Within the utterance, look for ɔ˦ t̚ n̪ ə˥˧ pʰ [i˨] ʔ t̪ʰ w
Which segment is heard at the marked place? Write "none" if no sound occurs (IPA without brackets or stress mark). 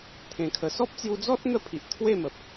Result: i˨